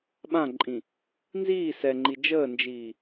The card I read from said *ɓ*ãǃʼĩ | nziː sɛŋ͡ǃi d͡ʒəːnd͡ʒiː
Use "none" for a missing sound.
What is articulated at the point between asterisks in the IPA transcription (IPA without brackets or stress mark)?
ɓ